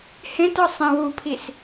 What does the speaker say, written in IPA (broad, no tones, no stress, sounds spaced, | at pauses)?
h ẽ t ɒ sˤ ẽ w u pʰ i s